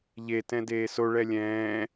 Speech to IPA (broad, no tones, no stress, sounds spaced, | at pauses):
ʎ e t ɛ̃ d eː s o ɭ ɛ lʲ ɛ̃ː